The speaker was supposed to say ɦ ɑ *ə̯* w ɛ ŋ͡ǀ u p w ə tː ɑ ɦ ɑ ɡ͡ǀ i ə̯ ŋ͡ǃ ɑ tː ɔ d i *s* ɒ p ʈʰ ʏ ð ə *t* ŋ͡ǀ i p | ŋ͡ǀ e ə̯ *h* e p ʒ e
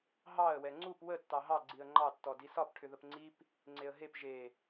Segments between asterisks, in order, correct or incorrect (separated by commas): correct, correct, incorrect, incorrect